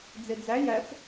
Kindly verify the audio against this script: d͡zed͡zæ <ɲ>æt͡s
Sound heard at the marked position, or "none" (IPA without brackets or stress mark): j